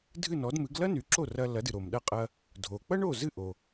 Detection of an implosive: present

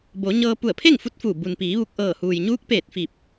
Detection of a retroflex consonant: absent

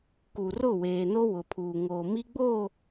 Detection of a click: absent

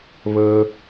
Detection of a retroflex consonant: absent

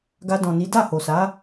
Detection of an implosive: absent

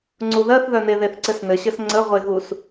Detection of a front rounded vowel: present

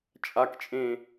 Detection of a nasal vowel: present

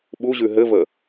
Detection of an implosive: present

